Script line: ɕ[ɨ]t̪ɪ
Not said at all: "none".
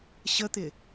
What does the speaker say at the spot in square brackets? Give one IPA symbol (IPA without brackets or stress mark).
ə